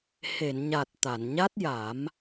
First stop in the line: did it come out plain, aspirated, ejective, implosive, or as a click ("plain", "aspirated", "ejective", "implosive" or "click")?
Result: plain